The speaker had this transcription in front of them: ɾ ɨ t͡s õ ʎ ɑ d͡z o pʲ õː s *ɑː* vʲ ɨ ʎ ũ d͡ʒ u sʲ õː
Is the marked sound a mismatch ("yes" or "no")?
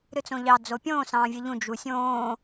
yes